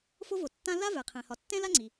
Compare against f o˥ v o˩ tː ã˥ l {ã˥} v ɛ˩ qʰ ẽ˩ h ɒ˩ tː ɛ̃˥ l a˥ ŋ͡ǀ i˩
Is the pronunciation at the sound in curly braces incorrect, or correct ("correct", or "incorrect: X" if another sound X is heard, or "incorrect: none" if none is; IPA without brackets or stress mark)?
incorrect: a˥